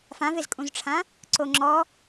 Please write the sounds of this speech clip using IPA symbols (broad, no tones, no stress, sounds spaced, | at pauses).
f ã v e z kʼ ũ z ʈ͡ʂʰ ã | ǀ o ŋ͡ǁ ɔ